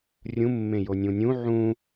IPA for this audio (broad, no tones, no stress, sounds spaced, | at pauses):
rʲ ũ mː ẽ j o nʲ ũ nʲ ũ ʕ ũ